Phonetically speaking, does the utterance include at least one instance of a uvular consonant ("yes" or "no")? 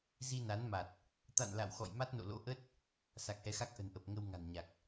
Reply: no